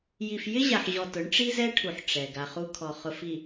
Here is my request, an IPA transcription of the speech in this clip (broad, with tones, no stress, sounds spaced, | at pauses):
j i˨ f j ɪ˦ ʑ a˨ ħ ʑ ɔ˨ t ʊ˨˦ ɳ ʈ͡ʂ i˦ z ɛ˦ ʈʰ u˨ ħ ʈ͡ʂ ɛ˨ ɡ a˨ χ u˦ kʰ ɔ˨ χ ʊ˨ f i˨